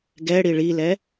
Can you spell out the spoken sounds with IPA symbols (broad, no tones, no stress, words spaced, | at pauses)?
ɡɛ ɽiɭilɛ